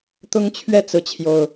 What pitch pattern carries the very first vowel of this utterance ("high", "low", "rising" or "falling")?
high